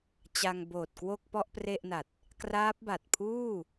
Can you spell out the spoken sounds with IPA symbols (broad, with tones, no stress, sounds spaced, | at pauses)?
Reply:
t͡ɕ a˧ ŋ b oː˨˩ t̚ k w o˥˩ k̚ p ɔ˥˩ ʔ p r e˥˩ ʔ n a˨˩ t̚ | k r aː˦˥ p̚ b a˨˩ t̚ pʰ uː˥˩